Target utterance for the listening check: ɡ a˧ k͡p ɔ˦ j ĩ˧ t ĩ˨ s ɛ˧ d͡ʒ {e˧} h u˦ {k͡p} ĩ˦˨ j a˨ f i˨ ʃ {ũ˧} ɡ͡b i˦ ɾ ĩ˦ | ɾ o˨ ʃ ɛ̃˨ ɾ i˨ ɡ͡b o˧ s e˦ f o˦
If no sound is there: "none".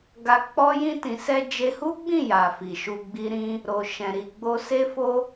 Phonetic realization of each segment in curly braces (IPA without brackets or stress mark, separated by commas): e˧, ɡ͡b, u˧